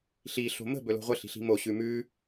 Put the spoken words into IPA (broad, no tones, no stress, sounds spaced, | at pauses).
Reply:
ɬ i ɬ o̤ m ə̤ b ɵ l o̤ ʁʷ ə ɬ i̤ ɬ i̤ m o ɕ ʉ m ʉ